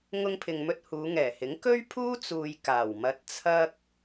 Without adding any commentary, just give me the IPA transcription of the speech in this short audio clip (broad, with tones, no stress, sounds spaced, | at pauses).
ŋ ʊ˧ ŋ pʰ ɪ˨ ŋ m ɵ˧ t̚ h uː˨˧ ŋ ɛː˨˩ h ɪ˨˥ ŋ k ɵ˥ ɥ pʰ uː˥ t͡s uː˨ j k aː˨˩ w m ɐ˧ t̚ t͡sʰ ɐ˥ k̚